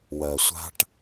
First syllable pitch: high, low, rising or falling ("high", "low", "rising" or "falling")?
low